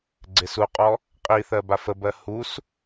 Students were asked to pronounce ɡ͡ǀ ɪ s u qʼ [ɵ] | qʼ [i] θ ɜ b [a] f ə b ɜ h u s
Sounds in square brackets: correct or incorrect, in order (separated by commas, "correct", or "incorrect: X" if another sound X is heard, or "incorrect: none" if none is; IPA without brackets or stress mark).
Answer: incorrect: ɔ, correct, correct